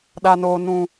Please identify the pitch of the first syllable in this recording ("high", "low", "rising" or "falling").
low